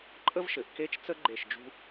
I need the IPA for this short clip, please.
ǃʼ ə˥ v ʃ ɘ˩˧ ʔ k e˥˧ t͡ʃ t͡s ə˥ ɡ͡ǃ e˧˩ ʃ d͡ʒ ṳ˧

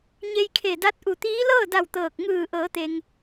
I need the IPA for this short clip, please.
ɲ e˧ j kʰ e˧˩ d a˧˥ t̚ ʔ u˧˩ t̪ iː˧˥ l ɤː˥˨ d a˧˩ w t̪ ɤː˧˩ k̚ ŋ ɯː˧˩ ʔ ɤː˩˧ t̪ e˩ ŋ

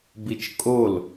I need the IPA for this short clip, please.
b i t͡ʃ kʼ o l

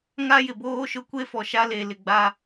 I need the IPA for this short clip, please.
ŋ a˦ j ɪ˨ b oː˦ ʃ ʊ˦ kʷ e˦ f ɔ˨ ʃ a˦ l e˨ l ɪ˨ ɡ͡b a˦

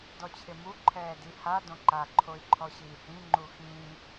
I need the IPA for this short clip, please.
d ɔ t͡ɕʰ ɪ m u ǃʰ ɛː d i h a d õ ǃ a ǃʰ o i̯ ǃʰ ɔ ɕ iː h ĩ ŋ͡ǃ u x ĩː

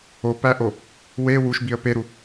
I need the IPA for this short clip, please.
o p æ ʔ o | w e w u ʃ b i ə̯ p e ɾ u

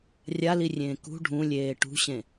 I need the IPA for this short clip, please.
rʲ a l i rʲ ẽː k ṳ ɖʱ ũ lʲ eː ʈ ṳ ɕ ẽ

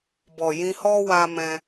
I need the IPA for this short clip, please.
b ɔ˨ j ĩ˧ h ɔ˦ w a˧ m ɛ̃˧

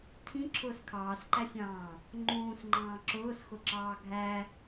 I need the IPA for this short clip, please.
tʰ ĩ ǁʰ ʊː s kʰ ɑː s ǃ æ sʲ ɑ̃ː | ŋ͡ǃ ũː s ŋ͡ǃ ɑ̃ː ǁ ʊː s x ʊ ǁ ɑː ɡʱ æ

